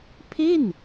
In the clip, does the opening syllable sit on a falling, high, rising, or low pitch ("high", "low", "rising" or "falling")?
falling